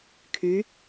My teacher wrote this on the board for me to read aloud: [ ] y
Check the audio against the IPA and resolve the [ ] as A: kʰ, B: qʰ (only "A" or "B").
A